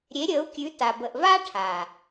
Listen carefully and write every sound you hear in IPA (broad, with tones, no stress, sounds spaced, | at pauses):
ɾʲ e˨˦ ɾʲ əː˨˦ u̯ kʲ ʉ˨˦ t a˨ b ə˨ ʔ v aː˦ ʈʰ a˨